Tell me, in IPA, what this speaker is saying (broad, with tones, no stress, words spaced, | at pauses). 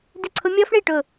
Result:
dɪ˥˩ǀʰʊ˦˥ mʲɔ˦˥fɳi˥˩ʈʊ˧˩